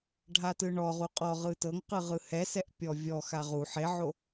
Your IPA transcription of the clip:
ɖʱatɯɳɔʁu qʼɔ ʁɯtɤŋqɯ ʁɯhɛsɛʔ pʲɔvʲɔxa ʁu ħeʕo

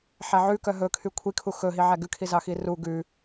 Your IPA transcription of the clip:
ħæʕʉkœ ɦɵkʰy kʷʰikʰu xɵɦi ʕæɡʉkʰi zɑxiru ɡʉ

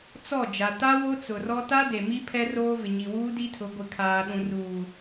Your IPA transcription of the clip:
t͡sɔ˦˨ d͡ʒa˨ ta˦ wo˦t͡sʊ˨rɔ˦ ta˦de˨mi˦ pʰɛ˦roː˦vɪ˨ ɲi˨wuː˦di˦tʰʊ˨˦ ɡʷɪ˨kʰaː˨ɗũ˨ ruː˨

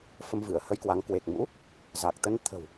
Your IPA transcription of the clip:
fə˧mvɨ˧˩ə̯hə˧jkwa˨˦ŋ kwe˨˩k̚mṵ˧˥ | za˨˩k̚ t̪ə˨˦nt̪ʰə̤˨˩w

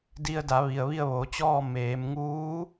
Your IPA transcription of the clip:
di˧ə̯da˩˧ ʋi˩ə̯ʋi˥˨ə̯ʋoː˩˧t͡ɕɔː˥˨ meː˩˧mŋuː˧˥

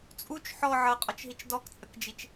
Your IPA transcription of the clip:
t͡sʼut͡ʃ ħɔ ʕɤqʼɔt͡ʃɦit͡ʃ dɔkt͡sʼəkd͡ʒit͡ʃ

